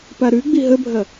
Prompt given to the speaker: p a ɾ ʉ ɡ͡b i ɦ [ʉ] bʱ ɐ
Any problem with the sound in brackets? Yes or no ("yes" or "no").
yes